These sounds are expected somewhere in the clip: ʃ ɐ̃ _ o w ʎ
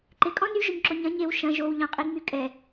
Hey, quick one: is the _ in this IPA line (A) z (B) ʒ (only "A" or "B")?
B